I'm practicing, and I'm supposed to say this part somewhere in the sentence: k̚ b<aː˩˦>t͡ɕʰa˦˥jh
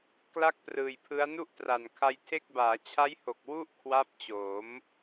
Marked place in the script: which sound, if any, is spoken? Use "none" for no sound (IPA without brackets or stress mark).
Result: aː˩˦